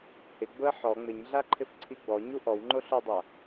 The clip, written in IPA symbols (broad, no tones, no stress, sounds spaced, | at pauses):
h ɪ ɡ͡b ʊ ə̯ ħ ɔ ŋ͡m ɪ ɲ ɮ a ǃʰ ɪ f ǀʰ i ɡ͡b ɔ ɲ u ʔ ɔ w ŋ͡ǃ o ɬ ʊ dˤ a